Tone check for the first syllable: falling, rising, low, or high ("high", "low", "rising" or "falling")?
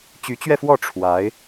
rising